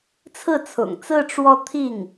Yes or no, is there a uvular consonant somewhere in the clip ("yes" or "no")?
no